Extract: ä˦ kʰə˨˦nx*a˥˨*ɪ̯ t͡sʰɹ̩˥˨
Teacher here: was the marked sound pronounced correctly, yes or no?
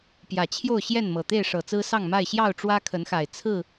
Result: no